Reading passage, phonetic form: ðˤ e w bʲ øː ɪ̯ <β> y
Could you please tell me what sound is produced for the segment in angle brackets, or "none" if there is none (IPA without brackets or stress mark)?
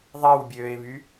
β